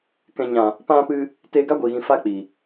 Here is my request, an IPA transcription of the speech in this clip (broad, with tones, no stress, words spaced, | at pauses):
kɛ̃˨ɲã˨ | pã˧pɨ˧ | teː˧ɡa˦ɡʷiː˨ɣĩ˨ fa˦ k͡pi˨